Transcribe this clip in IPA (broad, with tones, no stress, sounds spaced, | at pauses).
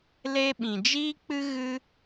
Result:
l e˦ ɓ ĩ˨ d͡ʒ iː˦ k͡p ɨ˦ ɣ ɨ˦